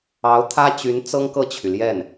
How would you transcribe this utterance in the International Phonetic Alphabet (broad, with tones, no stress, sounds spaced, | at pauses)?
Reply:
ɑ˧˥ ʊ̯ t̪ʰ ä˥ t͡ɕ y˧˥ n t͡s ɤ˥ ŋ k ɤ˥˩ t͡ɕʰ y˩ l j ɛ˥˩ n